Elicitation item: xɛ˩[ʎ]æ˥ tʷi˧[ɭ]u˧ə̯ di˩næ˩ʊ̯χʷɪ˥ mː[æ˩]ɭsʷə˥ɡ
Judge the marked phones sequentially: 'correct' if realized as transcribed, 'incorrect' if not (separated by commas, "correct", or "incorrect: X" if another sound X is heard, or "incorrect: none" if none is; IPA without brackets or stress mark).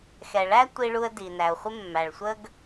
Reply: incorrect: ɭ, correct, correct